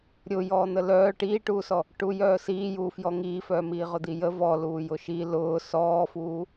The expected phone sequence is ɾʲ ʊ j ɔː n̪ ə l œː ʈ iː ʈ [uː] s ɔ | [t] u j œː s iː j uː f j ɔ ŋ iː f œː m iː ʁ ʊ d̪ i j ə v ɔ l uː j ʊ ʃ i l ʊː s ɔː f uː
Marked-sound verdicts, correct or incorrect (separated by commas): correct, incorrect